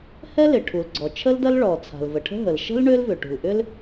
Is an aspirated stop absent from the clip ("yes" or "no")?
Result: no